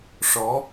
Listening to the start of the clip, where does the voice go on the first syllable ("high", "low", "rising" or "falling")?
rising